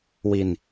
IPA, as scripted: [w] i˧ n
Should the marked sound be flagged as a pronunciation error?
no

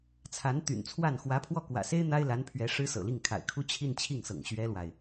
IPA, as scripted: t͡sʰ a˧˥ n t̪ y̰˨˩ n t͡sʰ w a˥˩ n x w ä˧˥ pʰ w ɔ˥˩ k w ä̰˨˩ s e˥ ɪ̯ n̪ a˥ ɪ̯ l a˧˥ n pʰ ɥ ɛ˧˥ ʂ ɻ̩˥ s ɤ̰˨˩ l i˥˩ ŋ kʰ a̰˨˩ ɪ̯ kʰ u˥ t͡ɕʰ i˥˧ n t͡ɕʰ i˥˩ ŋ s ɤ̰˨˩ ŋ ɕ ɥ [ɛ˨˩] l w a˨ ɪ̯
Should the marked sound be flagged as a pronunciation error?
yes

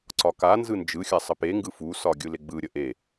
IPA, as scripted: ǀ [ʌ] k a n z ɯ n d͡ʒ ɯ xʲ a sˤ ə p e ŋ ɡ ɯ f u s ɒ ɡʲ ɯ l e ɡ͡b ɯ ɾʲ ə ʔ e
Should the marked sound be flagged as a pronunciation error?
yes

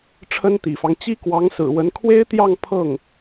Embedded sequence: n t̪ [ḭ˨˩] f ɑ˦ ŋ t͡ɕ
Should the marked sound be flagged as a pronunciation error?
no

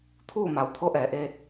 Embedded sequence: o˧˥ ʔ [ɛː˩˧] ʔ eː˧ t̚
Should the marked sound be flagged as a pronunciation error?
no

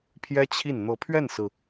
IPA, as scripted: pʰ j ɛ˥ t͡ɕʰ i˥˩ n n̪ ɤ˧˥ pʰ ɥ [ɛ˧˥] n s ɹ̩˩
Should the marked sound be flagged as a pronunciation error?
yes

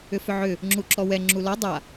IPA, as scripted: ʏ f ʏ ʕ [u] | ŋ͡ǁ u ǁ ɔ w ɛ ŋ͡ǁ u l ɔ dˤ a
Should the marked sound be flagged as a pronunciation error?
yes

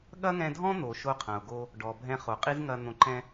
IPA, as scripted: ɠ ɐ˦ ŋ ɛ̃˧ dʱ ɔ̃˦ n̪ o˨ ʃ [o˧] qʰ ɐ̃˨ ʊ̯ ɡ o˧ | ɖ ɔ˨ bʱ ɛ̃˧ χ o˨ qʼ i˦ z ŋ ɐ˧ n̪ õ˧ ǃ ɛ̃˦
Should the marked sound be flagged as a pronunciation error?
no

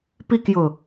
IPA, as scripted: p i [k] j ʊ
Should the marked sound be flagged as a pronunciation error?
no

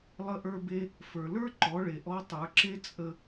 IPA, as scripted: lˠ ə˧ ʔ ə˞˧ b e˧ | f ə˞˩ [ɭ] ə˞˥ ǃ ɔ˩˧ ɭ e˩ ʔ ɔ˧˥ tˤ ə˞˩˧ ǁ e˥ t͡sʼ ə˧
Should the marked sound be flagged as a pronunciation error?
yes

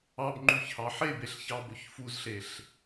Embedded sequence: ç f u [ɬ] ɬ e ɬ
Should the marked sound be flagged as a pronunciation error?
yes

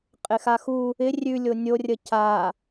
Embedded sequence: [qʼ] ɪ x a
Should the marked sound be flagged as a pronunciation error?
no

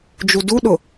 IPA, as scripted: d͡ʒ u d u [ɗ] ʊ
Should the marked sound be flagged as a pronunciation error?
no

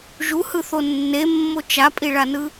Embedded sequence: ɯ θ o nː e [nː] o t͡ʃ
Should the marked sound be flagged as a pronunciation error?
yes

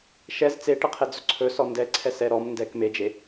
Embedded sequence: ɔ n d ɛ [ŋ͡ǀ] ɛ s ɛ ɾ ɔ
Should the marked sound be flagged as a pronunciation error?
yes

